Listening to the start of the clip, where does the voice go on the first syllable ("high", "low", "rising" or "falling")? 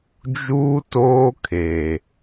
high